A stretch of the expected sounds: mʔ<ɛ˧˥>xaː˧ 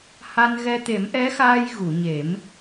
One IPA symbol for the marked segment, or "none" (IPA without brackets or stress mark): ɛ˧˥